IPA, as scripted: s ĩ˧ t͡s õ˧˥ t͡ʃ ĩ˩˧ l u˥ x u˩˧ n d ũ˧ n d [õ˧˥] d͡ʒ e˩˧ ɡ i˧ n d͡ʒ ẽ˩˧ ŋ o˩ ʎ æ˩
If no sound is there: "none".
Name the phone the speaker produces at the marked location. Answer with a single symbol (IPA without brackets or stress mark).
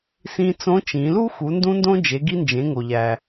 õ˧